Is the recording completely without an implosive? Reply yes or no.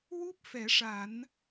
yes